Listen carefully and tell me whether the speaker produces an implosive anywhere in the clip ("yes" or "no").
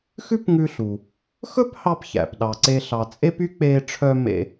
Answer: yes